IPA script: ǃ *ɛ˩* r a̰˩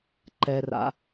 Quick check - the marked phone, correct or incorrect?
correct